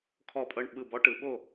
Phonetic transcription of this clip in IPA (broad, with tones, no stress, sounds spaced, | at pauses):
kʰ ɔ˧˩ pʼ ɤ˧˩ ɳ ɓ ɯ˧˩ b ɔ˥ ʈ ɯ˩˧ ɓ o˥˩